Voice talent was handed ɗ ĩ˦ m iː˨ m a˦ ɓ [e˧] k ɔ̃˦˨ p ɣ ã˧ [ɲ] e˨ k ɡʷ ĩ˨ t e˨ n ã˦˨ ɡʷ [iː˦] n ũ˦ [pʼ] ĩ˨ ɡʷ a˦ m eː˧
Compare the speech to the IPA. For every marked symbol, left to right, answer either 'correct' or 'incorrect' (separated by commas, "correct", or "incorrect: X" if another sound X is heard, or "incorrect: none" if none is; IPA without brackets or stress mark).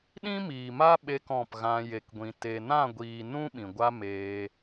correct, incorrect: j, incorrect: iː˨, incorrect: ɓ